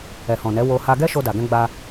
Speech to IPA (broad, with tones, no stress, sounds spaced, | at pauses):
ɛ˨ h ɔ̃˨ n ɛ˨˦ w o˧ h a˧ ɡ ɛ˦ ʃ o˧ d a˨ ɡ ɛ̃˧ ɡ͡b a˧